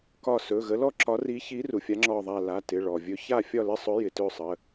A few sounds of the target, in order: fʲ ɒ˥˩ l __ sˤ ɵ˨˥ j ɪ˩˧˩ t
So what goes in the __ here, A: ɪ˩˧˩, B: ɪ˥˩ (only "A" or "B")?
B